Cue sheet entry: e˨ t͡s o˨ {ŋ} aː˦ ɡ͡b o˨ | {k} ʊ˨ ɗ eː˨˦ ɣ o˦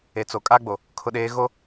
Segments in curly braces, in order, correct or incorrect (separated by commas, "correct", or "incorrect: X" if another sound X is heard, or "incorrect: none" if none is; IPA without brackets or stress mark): incorrect: kʼ, incorrect: kʰ